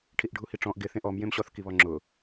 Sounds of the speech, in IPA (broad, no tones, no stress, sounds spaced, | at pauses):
ʈʰ i ʔ ɖʱ u h i ʈ͡ʂ ɔ̃ ʔ ɡ ɪ θ ẽ ʔ ɔ m j ẽ m ɕ ɔ θ k i β ɔ ŋ͡ǁ ʊ